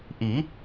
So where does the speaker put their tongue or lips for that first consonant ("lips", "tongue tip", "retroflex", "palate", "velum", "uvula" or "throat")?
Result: throat